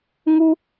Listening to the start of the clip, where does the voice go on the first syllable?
high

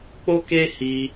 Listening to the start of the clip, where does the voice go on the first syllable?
high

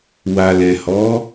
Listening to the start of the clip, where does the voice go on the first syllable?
low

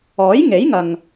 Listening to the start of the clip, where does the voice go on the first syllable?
rising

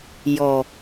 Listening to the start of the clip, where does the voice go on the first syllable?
low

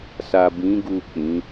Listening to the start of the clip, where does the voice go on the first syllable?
low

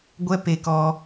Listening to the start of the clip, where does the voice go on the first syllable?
high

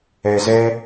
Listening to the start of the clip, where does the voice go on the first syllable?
low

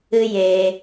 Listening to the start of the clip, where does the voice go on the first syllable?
high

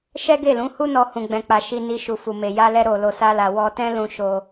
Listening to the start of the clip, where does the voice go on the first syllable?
high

